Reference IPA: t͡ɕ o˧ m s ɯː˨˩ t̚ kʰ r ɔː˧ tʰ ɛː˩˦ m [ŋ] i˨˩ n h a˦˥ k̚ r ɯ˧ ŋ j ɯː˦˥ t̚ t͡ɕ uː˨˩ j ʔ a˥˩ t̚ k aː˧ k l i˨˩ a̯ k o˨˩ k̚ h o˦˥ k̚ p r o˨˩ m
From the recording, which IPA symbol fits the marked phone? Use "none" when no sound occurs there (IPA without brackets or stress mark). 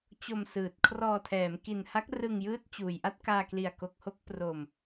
k